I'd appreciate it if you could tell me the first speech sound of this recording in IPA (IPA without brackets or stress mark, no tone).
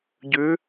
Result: ɟ